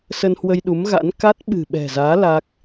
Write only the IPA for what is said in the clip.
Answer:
sə˧nhwə˧jɗu˨˦mɣa̰˧˥n ka˦˥t̚ɓɨ̤˨˩ɓɛ̤˨˩zaː˨˦ la˦˥k̚

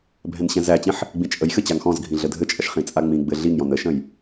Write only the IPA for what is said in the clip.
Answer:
bʱɛ̃nɕɛ̃zæt͡ɕĩħ | ɡ͡bĩt͡ʃʼəjxɘ t͡ɕaŋxɔ̃zɡʱĩ ɮədʱɘt͡ʃʼɐʃ χĩt͡sʼaŋ͡mĩɡ͡bɘ ɮiŋjɔ̃n əʃə̃j

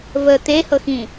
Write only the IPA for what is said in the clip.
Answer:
və t̪ehɤxĩ

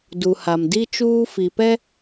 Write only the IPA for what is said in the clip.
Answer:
du˨ha˨mdi˦ t͡ʃuː˦fi˨pɛ˦

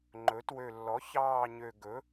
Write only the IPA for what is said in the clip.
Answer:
ŋ͡ǃɵ˩˥ twø˨˩lːɔ˩˥ çɑː˦˨ɲø˨˩ɡɵ˩˥

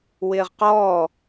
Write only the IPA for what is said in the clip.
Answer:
wɪːʁqɔː

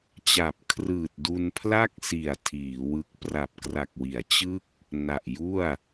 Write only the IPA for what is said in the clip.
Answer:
t͡ɕa˨˩p̚kʰrɯː˨˩t̚ du˧npʰla˥˩k̚si˨˩a̯ tʰiː˩˦wɯ˦˥k̚ pra˨˩p̚kra˨˩k̚ wi˩˦a̯t͡ɕɯ˥˩k̚ | na˨˩ʔju˥˩a̯

